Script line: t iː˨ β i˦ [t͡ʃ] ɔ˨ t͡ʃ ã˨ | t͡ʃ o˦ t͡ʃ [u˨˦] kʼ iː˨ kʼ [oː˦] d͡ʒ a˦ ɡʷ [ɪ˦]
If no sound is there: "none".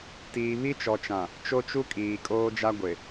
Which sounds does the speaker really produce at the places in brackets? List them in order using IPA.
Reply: t͡ʃ, u˦, oː˦, ɪ˨

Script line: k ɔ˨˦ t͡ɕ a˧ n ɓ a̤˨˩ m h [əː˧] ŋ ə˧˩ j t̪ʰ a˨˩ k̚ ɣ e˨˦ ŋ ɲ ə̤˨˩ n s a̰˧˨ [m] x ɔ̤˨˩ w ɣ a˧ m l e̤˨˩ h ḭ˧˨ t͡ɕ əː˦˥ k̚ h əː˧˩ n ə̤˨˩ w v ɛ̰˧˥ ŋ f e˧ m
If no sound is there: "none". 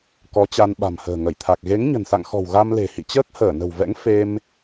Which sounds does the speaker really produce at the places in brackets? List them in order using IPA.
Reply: ə̤ː˨˩, ŋ

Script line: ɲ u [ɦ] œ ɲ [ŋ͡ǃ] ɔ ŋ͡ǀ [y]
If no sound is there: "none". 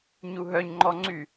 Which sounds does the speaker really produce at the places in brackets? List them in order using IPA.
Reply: ɦ, ŋ͡ǃ, y

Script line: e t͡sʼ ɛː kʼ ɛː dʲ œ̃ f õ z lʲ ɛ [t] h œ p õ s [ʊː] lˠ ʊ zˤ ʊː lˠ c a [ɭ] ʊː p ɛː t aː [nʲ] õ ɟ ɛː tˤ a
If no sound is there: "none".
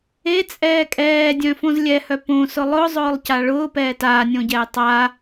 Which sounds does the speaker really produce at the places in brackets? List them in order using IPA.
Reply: none, ʊ, ɭ, nʲ

